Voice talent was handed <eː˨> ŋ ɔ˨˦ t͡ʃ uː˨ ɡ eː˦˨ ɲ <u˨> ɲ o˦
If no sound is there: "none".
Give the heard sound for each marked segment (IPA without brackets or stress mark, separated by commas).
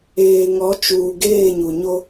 eː˨, u˨